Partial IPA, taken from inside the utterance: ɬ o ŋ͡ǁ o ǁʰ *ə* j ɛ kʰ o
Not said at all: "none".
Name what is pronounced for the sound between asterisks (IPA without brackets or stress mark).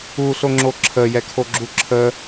ə